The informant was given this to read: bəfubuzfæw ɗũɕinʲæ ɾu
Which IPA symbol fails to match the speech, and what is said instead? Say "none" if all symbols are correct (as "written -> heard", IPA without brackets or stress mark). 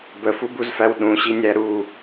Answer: none